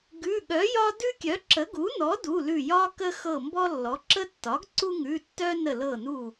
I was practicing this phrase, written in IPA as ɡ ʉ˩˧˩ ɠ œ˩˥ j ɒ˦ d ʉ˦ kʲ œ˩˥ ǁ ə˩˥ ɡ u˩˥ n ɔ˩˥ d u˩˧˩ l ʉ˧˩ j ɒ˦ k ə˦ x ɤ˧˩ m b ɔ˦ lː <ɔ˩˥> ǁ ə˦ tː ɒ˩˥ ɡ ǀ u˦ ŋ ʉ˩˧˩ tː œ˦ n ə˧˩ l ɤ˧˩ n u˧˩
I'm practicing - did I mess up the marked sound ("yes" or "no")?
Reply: no